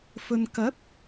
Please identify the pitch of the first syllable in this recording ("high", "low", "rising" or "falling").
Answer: low